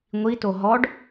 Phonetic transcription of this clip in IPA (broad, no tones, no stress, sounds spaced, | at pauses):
ŋʷ i t o ɦ ɔ ɖ